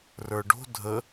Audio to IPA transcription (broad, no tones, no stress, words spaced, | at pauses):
rə˞ɖo̤ dʱə